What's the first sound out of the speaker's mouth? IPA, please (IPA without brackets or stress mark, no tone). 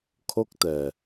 kʰ